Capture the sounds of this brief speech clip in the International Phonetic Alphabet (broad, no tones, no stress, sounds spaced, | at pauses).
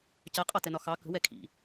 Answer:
c ɜ qʼ ɑ t ɛ n ɒ x ɑ k ə̤ w ɛ kʰ ḭ